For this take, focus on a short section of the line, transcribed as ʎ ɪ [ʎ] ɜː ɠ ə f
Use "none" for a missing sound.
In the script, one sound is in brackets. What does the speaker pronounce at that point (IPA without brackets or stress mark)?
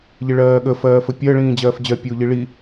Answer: ɭ